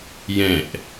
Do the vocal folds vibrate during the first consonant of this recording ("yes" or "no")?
yes